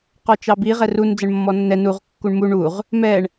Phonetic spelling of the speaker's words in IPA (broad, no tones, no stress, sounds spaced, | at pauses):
q ɔ t͡ʃ ɑ b i ʁ ɛ r u n d͡z ə ɳ mː ɔ nː ɛ n u ʁ kː u ɳ m u ɳ u ʁ | m ɛ ɳ